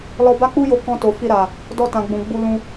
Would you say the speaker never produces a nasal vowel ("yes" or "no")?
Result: no